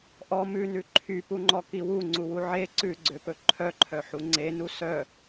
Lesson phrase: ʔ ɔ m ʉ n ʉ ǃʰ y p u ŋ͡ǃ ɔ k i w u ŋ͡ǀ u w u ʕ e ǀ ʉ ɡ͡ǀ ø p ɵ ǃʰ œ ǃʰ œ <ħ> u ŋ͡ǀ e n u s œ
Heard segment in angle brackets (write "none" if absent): ħ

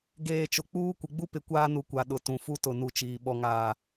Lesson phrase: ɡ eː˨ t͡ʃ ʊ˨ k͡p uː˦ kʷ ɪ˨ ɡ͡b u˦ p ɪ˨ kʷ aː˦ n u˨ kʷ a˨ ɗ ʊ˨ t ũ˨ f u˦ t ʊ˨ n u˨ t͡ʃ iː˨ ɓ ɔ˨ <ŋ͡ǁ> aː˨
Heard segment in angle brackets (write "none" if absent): ŋ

